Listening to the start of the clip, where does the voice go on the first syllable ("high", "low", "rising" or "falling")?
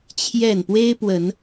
falling